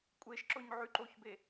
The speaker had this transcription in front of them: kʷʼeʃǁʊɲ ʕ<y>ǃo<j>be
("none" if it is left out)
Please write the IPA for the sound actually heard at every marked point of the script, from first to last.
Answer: y, ç

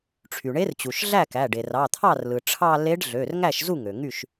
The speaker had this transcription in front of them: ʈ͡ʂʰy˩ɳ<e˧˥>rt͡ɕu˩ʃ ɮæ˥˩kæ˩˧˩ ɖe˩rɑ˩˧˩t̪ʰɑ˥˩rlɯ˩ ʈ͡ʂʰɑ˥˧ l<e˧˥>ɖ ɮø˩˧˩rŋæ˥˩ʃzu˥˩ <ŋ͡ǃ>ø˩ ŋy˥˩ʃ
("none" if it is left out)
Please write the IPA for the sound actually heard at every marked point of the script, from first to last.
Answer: e˧˥, e˧˥, ŋ

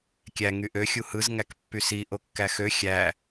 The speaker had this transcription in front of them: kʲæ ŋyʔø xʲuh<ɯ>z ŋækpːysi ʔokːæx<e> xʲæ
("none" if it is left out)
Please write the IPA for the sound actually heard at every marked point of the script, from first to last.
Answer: ɯ, ø

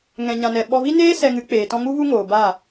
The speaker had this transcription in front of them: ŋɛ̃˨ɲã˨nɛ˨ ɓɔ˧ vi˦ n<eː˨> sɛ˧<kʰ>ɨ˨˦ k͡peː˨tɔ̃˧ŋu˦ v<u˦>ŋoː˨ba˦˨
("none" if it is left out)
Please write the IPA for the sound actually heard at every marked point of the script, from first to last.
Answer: eː˦, ŋ, u˦

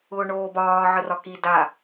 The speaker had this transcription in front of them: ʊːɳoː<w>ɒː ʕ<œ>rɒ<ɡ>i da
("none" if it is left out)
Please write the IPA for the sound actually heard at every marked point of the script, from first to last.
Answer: b, ə, k

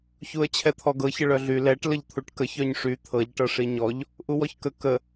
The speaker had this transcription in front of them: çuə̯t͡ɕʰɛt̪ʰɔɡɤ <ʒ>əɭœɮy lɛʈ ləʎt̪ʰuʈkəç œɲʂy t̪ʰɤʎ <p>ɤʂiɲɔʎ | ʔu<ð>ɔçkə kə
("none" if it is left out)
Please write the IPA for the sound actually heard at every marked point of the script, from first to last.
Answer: ç, ʈ, w

